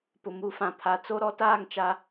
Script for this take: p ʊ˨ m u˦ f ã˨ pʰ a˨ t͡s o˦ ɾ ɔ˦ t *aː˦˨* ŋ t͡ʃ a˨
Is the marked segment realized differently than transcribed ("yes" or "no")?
no